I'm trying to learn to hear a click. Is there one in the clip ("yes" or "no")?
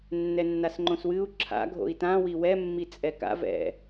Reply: yes